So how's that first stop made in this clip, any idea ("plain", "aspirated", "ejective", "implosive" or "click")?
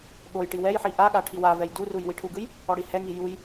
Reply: implosive